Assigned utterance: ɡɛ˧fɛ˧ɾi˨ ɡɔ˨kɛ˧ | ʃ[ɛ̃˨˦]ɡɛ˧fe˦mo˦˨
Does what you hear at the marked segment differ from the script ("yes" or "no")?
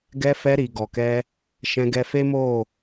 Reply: yes